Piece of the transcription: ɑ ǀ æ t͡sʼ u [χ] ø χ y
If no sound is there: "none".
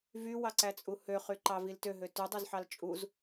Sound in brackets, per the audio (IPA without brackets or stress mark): h